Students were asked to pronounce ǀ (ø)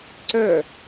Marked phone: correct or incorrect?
incorrect